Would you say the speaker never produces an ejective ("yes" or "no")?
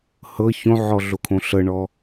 yes